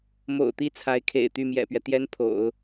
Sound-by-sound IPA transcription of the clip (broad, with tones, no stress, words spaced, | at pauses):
mo̰˨˩ʊ̯t̪i˥˩ t͡sʰa˧˥ɪ̯kʰḛ˨˩ɪ̯ t̪y˥˩mjɛ̰˨˩pɥɛ˦ t̪jɛ˥npʰo̰˨˩˦ʊ̯